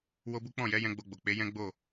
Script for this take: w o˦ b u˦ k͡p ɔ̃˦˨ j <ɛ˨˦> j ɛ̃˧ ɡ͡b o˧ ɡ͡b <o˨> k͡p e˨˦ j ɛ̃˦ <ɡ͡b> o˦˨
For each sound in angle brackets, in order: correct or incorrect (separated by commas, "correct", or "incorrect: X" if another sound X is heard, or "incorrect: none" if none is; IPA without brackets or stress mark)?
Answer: correct, correct, correct